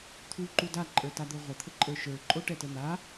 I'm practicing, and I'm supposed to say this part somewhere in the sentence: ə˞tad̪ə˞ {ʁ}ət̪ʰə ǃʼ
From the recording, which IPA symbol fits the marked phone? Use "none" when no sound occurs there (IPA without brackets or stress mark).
ʁʷ